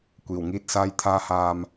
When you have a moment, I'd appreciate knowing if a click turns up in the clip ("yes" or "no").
no